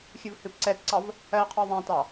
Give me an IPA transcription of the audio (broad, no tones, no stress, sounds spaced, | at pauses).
xʲ ɨ v h ɨ p ǀ ɛ t ǀ ɑ v | ɜ qʰ ɔ ðˤ æ̃ t ɑ